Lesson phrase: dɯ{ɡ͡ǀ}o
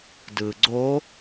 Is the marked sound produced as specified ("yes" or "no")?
yes